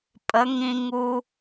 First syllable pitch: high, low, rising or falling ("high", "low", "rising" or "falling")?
rising